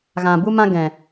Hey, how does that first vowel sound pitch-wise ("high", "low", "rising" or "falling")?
low